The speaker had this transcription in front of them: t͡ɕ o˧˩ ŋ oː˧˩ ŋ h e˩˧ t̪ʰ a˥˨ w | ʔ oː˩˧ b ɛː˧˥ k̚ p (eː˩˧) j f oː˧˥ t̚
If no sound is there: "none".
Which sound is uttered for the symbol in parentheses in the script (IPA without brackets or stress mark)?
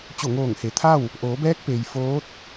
eː˩